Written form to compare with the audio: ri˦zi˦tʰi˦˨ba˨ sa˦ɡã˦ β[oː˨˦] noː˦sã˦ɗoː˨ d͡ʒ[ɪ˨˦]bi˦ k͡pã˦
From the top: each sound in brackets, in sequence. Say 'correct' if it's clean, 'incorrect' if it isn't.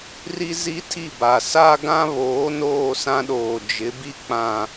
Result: correct, correct

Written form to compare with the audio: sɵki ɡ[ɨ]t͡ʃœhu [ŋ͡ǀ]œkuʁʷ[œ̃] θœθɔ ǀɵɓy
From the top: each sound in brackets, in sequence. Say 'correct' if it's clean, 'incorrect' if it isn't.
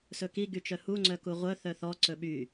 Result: incorrect: y, correct, incorrect: œ

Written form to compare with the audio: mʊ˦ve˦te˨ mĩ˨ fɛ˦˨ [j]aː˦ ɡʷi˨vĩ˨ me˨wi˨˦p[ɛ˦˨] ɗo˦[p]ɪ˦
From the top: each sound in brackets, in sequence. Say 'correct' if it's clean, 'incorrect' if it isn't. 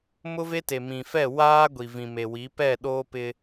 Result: incorrect: w, correct, correct

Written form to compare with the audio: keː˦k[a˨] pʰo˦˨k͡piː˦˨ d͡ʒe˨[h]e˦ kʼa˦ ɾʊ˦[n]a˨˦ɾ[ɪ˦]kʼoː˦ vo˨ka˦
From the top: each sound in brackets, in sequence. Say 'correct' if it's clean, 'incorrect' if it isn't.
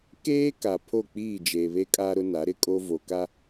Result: correct, incorrect: β, correct, correct

